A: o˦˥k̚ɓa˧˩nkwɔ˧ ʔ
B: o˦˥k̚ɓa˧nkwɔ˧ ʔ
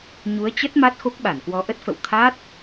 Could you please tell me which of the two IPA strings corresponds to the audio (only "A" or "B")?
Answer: A